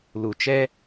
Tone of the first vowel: low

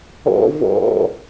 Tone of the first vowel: high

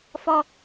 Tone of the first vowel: high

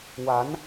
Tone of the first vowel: rising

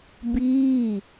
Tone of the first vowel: falling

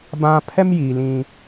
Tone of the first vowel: high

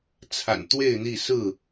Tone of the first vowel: low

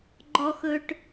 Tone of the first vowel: low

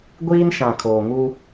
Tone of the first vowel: high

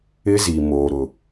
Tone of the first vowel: high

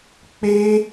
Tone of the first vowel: high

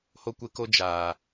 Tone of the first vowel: high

